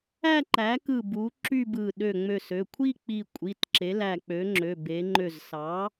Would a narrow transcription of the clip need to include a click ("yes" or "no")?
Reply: yes